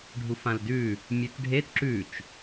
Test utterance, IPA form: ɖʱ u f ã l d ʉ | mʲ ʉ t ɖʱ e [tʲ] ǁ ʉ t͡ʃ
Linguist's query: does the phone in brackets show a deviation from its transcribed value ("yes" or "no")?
yes